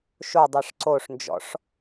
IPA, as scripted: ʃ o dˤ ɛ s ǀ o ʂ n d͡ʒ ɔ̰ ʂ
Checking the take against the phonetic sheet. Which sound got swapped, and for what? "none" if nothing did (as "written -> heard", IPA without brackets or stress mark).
s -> ʂ